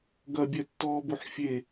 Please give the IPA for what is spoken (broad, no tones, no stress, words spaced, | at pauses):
ɡɐbʲɛtːɔːboħ fʲe